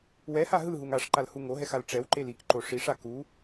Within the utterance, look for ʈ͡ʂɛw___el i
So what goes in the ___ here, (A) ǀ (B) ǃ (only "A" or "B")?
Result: B